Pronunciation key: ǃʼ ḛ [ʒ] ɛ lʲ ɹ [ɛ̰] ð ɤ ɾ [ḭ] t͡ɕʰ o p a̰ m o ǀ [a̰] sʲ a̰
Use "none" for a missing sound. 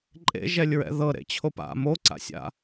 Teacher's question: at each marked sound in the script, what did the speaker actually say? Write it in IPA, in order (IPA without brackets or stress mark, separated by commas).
ʒ, ɛ̰, ḛ, a̰